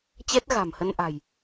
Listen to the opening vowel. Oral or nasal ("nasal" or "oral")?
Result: oral